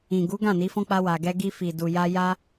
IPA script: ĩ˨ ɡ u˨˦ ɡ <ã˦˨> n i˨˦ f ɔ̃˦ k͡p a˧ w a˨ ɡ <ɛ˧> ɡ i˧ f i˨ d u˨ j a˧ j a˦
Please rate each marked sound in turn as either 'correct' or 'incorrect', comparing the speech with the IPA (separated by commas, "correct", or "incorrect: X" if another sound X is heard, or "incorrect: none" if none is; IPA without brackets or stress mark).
correct, correct